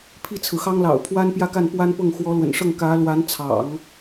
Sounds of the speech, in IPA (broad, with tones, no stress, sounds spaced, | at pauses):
pʰ i˥˩ t͡sʰ ɹ̩˩ x ɑ˥ ŋ l ɑ̰˨˩ ʊ̯ pʰ w a˥ n p j ä˥˧ k a˥˩ n p w a˥ n p ɤ˥˩ ŋ x w ɔ˧˥ l w ə̰˨˩ n ʂ ɤ˥˩ ŋ k ä˧˥ l w a˧˥ n t͡sʰ ɑ̰˨˩˦ ŋ